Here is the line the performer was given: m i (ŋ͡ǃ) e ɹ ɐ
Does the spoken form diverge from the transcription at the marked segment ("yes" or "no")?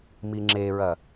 yes